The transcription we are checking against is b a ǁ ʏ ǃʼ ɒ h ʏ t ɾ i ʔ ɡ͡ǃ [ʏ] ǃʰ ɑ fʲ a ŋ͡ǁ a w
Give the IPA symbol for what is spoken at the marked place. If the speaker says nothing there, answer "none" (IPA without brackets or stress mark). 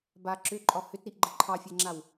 ə